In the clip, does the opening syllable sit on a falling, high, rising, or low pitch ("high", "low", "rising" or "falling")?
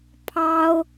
high